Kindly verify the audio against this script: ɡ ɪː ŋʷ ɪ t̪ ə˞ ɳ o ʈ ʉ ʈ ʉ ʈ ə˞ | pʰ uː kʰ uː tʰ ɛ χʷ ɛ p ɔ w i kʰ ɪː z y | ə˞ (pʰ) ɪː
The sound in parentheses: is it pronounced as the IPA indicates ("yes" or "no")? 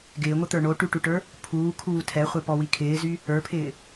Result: yes